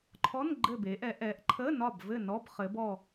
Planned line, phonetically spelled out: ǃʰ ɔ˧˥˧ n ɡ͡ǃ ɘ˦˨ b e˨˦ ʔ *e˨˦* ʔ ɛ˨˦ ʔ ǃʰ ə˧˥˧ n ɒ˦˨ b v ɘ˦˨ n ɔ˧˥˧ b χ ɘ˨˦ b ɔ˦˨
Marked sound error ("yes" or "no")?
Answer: yes